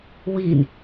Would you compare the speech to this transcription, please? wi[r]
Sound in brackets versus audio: incorrect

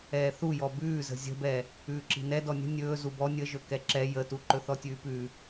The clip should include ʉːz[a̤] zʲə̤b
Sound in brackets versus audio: incorrect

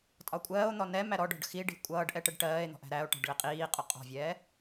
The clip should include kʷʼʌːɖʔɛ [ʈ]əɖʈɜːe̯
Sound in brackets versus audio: correct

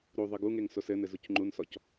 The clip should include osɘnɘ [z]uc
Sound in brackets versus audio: correct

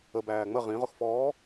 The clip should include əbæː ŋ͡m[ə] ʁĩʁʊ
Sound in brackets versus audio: correct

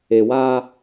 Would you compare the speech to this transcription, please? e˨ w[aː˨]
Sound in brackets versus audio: incorrect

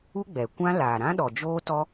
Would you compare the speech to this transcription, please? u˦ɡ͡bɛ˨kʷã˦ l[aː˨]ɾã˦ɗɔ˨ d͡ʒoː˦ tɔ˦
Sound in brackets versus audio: correct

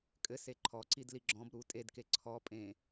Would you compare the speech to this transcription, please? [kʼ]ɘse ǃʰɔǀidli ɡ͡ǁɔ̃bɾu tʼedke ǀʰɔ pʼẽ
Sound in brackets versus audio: correct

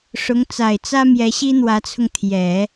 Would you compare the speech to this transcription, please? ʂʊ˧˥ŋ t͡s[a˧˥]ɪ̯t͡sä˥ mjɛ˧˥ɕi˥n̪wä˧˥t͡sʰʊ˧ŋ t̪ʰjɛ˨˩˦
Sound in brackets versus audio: incorrect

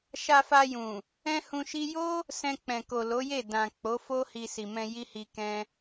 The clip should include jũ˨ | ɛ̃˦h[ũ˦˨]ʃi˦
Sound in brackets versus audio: incorrect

